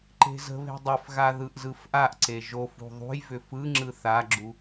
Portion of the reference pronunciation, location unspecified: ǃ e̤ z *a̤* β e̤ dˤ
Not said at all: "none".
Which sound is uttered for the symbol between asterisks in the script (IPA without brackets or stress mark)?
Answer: ə̤